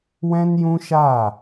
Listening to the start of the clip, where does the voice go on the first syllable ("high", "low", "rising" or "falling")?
high